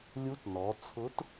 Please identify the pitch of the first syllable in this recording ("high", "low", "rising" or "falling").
rising